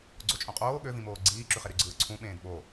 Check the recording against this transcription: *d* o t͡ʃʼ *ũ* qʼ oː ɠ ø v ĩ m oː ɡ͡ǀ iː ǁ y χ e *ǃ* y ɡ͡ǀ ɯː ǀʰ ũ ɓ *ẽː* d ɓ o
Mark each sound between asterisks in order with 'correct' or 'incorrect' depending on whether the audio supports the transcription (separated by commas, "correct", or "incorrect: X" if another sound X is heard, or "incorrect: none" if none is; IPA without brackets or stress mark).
incorrect: ɡ͡ǀ, incorrect: õ, incorrect: ɾ, correct